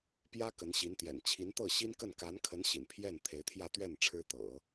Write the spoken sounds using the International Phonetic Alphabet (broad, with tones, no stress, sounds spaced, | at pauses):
p j ä˥ k ə˧˥ n ɕ i˧˥ n t̪ j ɛ̰˨˩ n t͡ɕʰ i˧˥ n t̪ ɤ˥˩ ɕ i˥ n k ə˥˩ n k a˧˥ n kʰ ə˧˥ n ɕ ḭ˨˩ n pʰ j ɛ˥˩ n t̪ʰ e˧˥ ɪ̯ t̪ʰ j ä˥˧ t̪ ɥ ɛ˥˩ n ʈ͡ʂʰ ɻ̩˥ t̪ ɤ̰˨˩˦